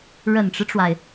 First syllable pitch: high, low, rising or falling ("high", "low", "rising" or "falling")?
low